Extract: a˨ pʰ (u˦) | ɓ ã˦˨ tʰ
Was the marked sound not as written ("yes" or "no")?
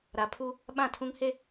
no